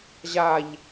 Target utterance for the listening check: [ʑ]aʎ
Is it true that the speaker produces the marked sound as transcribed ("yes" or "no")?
yes